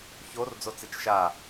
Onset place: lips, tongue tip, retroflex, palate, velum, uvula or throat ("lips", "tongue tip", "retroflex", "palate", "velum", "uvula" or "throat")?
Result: palate